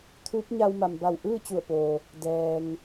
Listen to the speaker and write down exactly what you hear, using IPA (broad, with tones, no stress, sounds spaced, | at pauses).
t̪ʰ uː˧˥ p̚ ɲ a˧ w m a˩ m b a˧˩ w ʔ ɯː˥˨ t͡ɕ u˧˩ ə̯ p oː˩ | d ɛː˩ ŋ